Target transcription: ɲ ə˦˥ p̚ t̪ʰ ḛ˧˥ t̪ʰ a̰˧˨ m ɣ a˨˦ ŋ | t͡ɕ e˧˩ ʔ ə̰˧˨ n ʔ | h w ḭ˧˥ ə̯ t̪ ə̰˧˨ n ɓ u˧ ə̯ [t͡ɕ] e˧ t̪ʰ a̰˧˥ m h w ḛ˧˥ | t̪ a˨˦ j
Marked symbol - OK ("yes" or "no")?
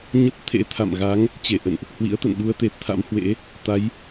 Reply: no